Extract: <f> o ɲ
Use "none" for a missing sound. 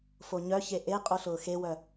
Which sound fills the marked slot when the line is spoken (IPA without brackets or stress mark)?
f